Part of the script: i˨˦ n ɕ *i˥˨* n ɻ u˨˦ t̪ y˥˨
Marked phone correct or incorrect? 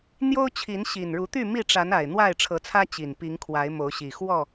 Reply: incorrect